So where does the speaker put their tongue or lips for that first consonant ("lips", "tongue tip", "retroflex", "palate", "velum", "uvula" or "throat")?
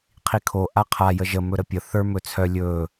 uvula